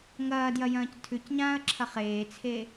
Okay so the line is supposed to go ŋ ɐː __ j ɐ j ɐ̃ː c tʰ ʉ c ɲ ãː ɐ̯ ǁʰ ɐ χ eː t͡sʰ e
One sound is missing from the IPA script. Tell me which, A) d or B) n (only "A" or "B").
A